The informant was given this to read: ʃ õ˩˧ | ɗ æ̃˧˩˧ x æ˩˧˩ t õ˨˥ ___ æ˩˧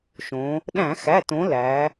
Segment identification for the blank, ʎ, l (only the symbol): l